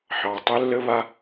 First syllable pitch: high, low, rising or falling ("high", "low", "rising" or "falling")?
low